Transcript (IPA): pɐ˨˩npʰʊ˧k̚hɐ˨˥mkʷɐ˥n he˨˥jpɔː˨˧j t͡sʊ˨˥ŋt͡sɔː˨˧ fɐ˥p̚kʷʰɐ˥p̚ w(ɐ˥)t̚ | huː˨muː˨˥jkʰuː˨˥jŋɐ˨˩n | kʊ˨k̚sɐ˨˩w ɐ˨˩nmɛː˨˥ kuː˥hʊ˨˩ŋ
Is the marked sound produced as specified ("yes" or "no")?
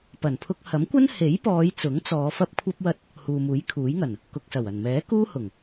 yes